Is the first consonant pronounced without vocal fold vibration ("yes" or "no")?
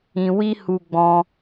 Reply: no